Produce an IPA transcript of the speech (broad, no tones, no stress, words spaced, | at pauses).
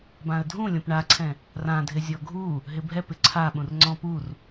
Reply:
bãə̯dʱũlʲõp ɳaǀʰɛ̃ | rãdʱɪ zʲɔɡʱu | ɦɪbʱɛpɪ ǀʰaɓũrŋ͡ǀɔ̃ pur